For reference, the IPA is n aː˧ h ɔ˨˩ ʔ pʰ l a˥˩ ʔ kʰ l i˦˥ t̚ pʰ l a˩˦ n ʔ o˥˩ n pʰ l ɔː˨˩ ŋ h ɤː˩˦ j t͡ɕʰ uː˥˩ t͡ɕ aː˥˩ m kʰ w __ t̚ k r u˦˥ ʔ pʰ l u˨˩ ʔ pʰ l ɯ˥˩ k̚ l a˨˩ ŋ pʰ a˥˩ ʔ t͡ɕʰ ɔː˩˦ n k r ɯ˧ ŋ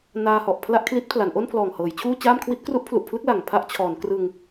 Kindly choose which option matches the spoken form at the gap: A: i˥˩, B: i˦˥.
B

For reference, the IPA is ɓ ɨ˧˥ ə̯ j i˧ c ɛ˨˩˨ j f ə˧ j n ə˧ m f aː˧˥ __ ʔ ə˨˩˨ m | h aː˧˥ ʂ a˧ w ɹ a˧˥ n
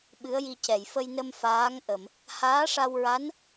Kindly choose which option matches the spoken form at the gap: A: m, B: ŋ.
B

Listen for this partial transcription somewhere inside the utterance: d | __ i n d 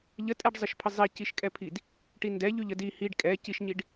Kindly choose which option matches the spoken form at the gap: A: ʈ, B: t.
A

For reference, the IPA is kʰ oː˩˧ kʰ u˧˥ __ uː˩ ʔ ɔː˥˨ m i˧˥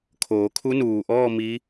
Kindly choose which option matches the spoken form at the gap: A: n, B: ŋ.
A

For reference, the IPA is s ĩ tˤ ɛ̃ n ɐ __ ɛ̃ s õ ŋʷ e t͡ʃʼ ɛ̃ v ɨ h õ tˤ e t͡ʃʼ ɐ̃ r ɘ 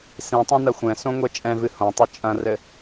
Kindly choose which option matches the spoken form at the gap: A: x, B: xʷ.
B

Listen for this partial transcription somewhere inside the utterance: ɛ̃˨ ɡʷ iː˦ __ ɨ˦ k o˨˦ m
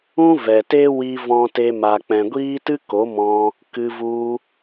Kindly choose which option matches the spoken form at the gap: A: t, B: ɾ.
A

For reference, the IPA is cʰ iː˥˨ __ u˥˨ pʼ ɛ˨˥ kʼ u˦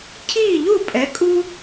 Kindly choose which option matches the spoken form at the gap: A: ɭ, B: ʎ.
B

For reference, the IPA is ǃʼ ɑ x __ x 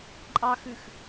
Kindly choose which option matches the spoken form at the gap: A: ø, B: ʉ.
B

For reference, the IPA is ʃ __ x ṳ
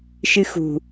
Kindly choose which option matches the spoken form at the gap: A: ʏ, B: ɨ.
B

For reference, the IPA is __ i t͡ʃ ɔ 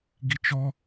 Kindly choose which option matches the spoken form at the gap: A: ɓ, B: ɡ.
B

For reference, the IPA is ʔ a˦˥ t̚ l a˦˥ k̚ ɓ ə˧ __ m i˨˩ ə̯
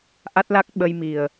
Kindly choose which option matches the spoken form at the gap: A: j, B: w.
A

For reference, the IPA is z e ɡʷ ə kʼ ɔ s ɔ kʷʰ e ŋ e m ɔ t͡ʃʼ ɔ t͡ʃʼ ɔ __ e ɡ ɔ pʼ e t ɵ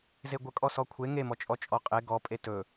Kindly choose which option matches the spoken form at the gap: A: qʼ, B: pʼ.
A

